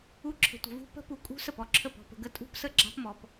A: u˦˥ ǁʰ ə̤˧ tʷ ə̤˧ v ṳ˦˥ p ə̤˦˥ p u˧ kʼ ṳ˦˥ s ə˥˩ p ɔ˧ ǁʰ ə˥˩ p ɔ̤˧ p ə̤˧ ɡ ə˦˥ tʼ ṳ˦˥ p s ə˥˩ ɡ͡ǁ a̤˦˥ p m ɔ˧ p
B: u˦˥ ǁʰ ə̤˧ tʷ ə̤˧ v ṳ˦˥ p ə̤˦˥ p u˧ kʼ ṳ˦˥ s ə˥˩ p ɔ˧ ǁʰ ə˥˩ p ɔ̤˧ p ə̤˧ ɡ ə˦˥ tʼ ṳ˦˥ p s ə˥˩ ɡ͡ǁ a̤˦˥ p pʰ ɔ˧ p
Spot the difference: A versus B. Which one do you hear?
A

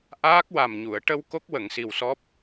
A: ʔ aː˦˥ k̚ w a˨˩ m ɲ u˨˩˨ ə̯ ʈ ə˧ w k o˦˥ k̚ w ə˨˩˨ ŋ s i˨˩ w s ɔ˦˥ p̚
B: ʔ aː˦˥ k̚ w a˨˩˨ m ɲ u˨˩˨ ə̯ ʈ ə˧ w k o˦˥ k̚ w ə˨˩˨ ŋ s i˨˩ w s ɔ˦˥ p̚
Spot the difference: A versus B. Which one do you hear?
A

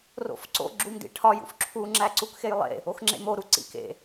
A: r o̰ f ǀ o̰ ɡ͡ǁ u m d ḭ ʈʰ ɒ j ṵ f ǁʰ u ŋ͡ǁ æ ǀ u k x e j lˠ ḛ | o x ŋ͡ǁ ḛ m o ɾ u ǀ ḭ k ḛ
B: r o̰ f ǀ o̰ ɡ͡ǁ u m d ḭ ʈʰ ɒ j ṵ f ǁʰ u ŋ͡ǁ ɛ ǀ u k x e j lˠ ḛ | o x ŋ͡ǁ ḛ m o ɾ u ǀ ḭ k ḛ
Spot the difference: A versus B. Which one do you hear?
A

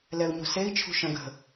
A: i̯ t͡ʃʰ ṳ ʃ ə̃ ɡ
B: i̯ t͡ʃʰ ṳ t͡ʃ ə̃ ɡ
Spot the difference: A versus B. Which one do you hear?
A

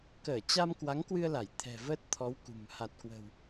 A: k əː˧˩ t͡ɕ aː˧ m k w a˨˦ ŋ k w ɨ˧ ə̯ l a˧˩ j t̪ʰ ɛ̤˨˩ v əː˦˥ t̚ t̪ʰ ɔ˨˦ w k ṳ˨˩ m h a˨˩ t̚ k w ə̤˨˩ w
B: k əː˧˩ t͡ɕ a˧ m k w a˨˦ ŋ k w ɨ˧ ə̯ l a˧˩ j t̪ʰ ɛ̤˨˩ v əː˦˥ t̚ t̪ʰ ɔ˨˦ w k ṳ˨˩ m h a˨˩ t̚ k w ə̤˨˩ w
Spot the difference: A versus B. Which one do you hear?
B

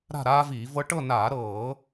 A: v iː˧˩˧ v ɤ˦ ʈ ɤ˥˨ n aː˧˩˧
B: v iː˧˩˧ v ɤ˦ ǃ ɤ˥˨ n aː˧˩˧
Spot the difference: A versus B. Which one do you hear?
A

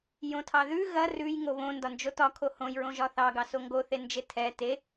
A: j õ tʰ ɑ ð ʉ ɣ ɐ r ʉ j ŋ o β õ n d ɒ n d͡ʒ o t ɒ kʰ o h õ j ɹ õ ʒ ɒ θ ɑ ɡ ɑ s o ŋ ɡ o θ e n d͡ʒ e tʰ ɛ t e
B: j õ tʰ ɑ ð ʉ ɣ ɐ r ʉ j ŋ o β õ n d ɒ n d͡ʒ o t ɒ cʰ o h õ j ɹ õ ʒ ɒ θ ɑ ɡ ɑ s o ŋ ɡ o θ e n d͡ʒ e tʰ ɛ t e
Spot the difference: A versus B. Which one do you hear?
A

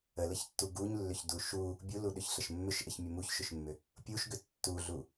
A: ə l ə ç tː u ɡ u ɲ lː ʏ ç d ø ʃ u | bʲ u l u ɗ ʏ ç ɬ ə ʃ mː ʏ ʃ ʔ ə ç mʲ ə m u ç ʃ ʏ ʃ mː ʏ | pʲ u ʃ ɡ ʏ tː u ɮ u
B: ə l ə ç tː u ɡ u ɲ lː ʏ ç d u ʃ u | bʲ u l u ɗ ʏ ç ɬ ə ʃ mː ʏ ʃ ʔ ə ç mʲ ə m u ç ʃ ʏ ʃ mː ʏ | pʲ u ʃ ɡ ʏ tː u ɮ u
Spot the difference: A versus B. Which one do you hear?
B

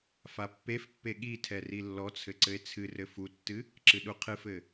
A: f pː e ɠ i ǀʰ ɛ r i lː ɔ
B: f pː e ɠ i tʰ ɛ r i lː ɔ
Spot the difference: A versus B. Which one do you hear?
B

